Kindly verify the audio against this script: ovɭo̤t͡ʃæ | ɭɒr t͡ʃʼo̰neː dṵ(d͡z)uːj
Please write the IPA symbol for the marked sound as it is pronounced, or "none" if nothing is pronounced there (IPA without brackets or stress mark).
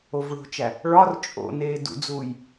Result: d͡z